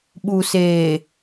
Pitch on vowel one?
low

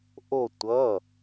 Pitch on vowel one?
falling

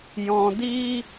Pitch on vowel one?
low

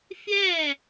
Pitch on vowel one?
falling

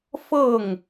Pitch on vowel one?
falling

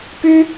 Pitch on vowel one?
high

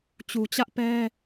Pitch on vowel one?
low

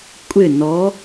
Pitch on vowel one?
falling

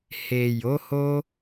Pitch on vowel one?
low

